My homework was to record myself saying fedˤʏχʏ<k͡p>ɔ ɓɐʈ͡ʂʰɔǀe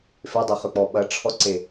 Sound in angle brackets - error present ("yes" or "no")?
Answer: no